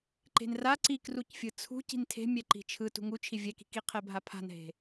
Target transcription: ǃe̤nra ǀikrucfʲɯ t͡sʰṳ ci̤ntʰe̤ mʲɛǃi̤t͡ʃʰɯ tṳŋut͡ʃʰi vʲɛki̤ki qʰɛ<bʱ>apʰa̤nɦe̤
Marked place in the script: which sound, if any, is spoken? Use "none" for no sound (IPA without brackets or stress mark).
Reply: bʱ